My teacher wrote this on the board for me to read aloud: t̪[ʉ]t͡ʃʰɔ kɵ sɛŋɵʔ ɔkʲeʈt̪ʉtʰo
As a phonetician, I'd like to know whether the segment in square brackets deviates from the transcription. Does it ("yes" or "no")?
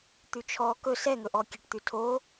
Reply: no